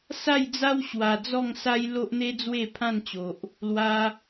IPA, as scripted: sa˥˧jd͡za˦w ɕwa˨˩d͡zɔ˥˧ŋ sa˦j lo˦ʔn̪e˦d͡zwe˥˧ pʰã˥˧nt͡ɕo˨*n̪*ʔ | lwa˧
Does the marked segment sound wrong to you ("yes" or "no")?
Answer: yes